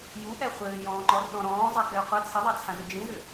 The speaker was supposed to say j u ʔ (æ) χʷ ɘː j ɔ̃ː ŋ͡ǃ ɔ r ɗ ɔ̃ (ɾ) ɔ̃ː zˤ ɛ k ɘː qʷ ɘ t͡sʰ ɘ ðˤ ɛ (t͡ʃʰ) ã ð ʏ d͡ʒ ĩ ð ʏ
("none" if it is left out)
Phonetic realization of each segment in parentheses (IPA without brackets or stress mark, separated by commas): ɛ, ɾ, t͡sʰ